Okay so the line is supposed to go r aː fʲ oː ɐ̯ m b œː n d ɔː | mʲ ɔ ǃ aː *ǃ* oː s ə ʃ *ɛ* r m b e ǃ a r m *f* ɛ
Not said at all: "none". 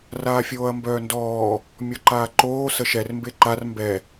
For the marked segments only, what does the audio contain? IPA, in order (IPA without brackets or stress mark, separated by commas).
ǃ, ɛ, b